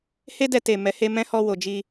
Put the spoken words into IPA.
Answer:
he˦dɛ˧ te˨ mɛ˨˦he˦ mɛ̃˦hɔ˧wo˨ d͡ʒi˧

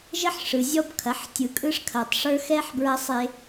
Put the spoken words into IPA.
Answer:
ʒə˦ħʂɯ˨zʲɔ˦bkʰɐ˨˦ħ tʲɯ˨kʼɯ˦ʂkʰɐ˨tˤʂə˞˦ xɛ˦ħbɹɐ˦sˤe˦

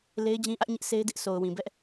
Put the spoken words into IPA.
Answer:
le˦ɪ̯d͡ʑĩ˦ʔä˦ʔɲɪ˦ʔ se˦ɪ̯dɪ˦ʔ sʰo˨ʊ̯wĩ˨bɛ˦ʔ

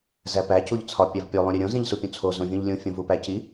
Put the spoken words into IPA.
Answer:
zæpæ cuʎt͡sʰɒ pʲævpʲo lˠũɾʲeɾʲõ zĩʎsupʲũt͡sʰo zõvʲũʎlʲũ fʲõvupæci

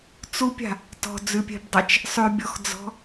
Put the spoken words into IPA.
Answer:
t͡supʲa̤ | tɔ̤d͡zʉpʲɛ̤bdˤat͡ʃ | sˤʉbʲɔxd͡zɔ̤

